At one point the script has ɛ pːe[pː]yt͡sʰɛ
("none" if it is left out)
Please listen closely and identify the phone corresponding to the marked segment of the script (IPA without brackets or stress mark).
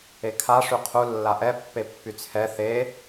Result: pː